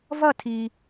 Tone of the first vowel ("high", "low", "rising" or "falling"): falling